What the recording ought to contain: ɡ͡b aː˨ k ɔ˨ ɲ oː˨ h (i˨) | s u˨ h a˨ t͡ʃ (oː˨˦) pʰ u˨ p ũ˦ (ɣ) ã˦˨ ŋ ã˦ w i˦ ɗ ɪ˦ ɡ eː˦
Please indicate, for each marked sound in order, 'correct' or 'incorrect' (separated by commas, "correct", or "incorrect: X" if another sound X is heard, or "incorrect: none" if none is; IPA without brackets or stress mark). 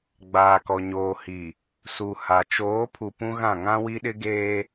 correct, correct, correct